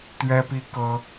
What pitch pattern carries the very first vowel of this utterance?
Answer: high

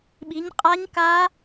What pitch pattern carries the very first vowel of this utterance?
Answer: rising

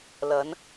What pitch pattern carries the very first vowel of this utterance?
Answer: rising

